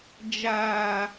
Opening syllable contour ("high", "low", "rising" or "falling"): high